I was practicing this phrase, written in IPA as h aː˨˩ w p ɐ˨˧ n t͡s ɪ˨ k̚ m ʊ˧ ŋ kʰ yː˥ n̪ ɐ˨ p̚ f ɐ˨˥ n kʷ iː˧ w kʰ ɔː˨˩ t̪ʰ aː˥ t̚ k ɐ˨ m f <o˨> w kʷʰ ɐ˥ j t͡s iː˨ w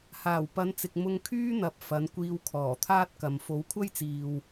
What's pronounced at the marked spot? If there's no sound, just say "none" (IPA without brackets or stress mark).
o˨˥